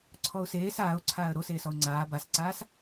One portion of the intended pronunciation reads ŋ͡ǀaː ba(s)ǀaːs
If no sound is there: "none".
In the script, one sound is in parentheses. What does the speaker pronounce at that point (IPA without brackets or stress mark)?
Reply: s